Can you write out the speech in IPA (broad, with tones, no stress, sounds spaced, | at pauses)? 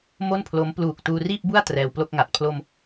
m o˥˩ n pʰ l o˦˥ m p l uː˨˩ k̚ t uː˧ r iː˥˩ p̚ b u˥˩ a̯ t r ɛː˧ w p l o˥˩ k̚ ŋ a˨˩ t̚ pʰ l o˧ m